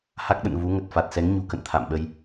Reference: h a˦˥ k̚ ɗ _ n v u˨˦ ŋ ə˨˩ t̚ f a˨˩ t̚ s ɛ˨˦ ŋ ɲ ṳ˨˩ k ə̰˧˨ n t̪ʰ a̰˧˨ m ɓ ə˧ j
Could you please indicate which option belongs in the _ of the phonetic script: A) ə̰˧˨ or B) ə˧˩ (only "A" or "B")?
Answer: A